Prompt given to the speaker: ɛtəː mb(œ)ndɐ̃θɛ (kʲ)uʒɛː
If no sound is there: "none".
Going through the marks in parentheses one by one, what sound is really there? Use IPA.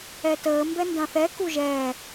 ɛ, k

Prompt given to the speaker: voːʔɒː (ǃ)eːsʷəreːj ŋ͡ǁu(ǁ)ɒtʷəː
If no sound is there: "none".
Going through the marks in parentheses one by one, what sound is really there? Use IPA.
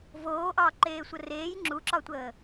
ǃ, ǁ

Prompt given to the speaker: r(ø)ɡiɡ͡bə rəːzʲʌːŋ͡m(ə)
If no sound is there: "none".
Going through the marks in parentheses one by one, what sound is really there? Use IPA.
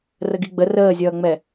ə, ɛ

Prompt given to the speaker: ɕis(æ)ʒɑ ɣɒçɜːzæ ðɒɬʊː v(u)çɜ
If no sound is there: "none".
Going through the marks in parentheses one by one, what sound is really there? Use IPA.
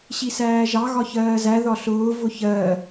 æː, ʊ

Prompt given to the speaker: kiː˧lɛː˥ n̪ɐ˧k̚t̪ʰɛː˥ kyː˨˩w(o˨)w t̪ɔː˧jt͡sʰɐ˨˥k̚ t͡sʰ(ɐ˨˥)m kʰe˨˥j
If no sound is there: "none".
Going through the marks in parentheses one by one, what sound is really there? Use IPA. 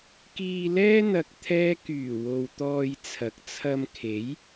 o˨, ɐ˧

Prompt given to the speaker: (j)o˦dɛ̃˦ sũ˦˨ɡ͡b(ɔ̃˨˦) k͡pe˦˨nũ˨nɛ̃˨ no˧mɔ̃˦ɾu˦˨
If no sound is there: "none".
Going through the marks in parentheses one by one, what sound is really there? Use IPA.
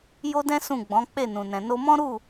j, ɔ̃˨˦

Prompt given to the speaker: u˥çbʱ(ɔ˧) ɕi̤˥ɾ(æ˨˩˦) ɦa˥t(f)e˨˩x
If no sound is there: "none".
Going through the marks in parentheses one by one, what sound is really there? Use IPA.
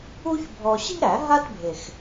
ɔ˧, æ˨˩˦, bʱ

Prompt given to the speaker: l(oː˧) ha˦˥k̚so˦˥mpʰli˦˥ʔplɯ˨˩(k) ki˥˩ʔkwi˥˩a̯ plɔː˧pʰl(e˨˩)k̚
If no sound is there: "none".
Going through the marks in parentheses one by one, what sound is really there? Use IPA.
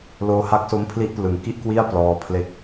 oː˧, ŋ, e˦˥

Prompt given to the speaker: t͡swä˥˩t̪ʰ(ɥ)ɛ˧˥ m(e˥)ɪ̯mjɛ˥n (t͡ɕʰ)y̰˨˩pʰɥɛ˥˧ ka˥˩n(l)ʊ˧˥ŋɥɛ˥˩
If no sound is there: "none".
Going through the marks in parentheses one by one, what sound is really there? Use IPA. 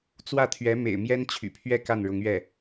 ɥ, ḛ˨˩, t͡ɕʰ, ɻ

